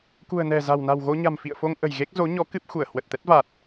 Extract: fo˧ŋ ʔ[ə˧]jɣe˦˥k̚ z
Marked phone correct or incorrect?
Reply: incorrect